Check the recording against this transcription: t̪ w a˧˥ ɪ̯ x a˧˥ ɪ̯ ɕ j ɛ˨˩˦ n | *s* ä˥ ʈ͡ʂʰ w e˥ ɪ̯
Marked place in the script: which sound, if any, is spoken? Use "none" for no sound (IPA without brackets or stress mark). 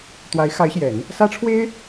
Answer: s